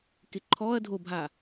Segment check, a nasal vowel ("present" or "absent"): absent